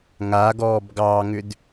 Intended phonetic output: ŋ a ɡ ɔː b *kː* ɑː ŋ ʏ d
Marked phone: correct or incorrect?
incorrect: ɡ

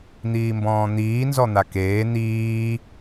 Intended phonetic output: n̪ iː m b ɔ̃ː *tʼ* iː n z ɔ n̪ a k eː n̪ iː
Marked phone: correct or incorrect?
incorrect: n̪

